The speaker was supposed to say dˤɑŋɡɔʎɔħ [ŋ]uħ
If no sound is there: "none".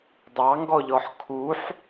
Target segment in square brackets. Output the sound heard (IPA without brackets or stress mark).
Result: kʰ